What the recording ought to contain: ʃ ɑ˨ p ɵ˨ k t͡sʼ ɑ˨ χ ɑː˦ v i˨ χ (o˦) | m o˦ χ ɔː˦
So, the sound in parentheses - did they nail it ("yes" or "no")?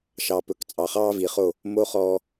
no